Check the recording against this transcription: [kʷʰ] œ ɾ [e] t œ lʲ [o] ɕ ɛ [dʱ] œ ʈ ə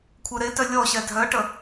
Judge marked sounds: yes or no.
yes, yes, no, yes

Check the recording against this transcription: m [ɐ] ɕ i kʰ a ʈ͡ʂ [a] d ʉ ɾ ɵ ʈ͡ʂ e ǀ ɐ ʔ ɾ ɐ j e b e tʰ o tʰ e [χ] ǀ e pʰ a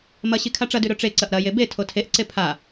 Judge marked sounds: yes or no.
yes, no, no

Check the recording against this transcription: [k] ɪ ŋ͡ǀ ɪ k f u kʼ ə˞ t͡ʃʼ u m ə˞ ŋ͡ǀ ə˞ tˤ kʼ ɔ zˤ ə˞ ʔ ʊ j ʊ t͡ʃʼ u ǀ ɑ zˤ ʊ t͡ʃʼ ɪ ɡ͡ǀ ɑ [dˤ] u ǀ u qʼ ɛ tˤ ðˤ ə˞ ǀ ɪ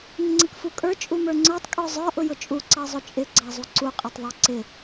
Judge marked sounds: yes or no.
no, no

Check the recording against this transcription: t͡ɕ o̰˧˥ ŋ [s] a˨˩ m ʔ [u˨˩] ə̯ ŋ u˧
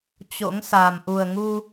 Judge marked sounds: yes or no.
yes, yes

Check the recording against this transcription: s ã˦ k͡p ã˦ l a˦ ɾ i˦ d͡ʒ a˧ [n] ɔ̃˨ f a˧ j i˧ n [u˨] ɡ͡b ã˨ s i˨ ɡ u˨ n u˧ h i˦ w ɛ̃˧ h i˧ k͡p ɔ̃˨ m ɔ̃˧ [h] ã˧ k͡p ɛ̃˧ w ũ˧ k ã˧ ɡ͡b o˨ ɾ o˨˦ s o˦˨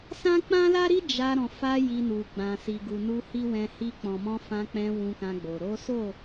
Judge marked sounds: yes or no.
no, yes, no

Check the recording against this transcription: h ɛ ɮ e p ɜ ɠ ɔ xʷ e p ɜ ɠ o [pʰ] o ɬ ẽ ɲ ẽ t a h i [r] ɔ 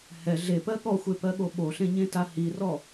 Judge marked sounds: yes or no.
no, yes

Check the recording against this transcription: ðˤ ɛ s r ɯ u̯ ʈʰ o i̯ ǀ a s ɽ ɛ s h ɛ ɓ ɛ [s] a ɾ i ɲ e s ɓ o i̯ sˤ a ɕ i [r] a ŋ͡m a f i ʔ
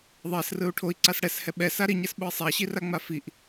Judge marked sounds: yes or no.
yes, yes

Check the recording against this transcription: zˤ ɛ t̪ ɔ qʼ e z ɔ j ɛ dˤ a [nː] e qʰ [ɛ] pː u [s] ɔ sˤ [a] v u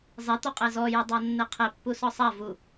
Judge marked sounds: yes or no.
yes, no, yes, yes

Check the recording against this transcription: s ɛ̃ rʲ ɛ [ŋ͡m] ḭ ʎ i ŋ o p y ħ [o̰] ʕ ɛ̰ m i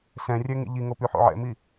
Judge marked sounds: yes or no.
no, yes

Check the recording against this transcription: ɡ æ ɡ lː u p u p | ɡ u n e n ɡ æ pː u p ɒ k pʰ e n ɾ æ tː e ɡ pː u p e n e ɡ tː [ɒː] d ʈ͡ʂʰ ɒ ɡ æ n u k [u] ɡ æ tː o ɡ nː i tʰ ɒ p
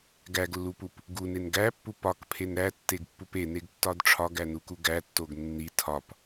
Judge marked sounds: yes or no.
no, yes

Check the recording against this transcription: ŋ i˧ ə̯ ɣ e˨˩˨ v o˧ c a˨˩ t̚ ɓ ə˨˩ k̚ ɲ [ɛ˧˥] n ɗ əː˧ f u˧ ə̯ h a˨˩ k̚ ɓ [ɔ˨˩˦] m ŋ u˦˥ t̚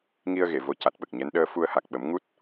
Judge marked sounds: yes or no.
yes, no

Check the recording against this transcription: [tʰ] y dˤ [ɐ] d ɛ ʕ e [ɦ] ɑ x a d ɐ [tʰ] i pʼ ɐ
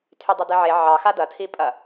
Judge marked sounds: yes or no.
yes, yes, no, yes

